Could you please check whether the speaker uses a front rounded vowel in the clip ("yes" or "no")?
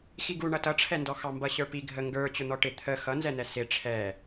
no